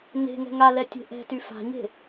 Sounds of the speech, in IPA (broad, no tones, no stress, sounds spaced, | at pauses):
n e̤ ŋ ɛ̤ ŋ a l ɛ tʲ e̤ ʔ ɛ̤ t y f a̤ ɲ e̤